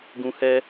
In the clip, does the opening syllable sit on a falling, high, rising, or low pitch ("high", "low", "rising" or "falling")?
low